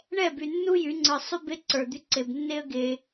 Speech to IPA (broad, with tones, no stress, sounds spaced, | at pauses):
ɳ ɛ˦˨ b y˨ nː u˦ j y˨˦ ŋ͡ǀ ə˞˧ sˤ y˦ b e˦ ǀ ə˞˨ d̪ y˧ ǀ e˨ b nː e˦ ə̯ ɡ e˧